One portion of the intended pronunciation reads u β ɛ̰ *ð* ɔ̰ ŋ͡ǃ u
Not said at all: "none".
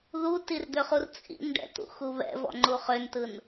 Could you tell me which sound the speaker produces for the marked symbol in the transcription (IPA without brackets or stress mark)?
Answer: v